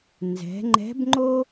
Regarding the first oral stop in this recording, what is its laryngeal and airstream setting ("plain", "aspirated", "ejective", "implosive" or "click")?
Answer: click